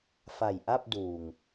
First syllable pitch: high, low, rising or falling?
low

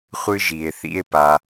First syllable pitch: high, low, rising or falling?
high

